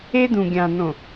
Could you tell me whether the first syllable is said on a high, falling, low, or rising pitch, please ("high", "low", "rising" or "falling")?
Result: high